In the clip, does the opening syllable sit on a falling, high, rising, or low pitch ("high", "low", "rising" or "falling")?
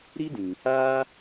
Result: high